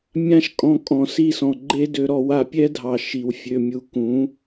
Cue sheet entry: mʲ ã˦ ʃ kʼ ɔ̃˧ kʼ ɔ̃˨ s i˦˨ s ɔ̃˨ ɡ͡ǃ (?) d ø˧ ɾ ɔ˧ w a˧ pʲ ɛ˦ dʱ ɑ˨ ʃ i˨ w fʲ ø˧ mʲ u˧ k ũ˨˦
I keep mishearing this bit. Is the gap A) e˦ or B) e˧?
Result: A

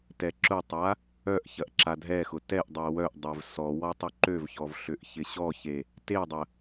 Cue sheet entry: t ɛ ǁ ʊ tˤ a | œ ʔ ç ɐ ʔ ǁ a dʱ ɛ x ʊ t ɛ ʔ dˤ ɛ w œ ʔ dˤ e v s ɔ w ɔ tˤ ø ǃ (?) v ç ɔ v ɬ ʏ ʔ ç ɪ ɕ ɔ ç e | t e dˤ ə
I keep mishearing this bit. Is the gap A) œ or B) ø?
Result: B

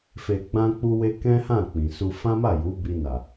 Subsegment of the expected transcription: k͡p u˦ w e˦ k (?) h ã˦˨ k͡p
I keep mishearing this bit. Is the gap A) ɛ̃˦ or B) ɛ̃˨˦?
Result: A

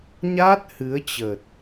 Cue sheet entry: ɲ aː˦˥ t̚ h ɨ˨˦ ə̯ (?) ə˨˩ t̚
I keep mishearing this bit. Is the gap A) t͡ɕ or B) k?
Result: A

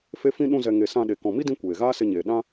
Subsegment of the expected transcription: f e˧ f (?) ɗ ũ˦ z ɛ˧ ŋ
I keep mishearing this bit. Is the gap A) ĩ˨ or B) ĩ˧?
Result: B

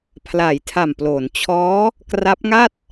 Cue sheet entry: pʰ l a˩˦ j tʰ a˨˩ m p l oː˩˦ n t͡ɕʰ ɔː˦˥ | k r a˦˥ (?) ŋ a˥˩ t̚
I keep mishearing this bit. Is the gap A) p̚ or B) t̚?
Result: A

